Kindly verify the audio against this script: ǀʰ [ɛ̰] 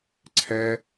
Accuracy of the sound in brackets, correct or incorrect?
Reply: incorrect